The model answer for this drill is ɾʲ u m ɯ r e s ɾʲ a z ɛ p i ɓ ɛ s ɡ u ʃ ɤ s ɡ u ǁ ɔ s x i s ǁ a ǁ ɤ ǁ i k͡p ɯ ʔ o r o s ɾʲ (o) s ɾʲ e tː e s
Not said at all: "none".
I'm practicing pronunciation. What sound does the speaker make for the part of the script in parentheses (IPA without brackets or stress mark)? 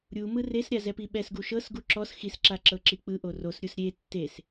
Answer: u